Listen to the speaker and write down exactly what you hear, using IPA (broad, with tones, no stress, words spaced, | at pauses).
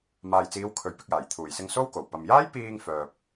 maː˨jt͡siː˨˧w kʰɵ˨˥ɥpɪ˧k̚jaː˨˩j t̪ʰuː˨˩jsɪ˧ŋ so˥wko˨˩w pɐ˨mjaː˥jpiː˧ŋfœː˨p̚